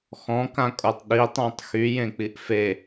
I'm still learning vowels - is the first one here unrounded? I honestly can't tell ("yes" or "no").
no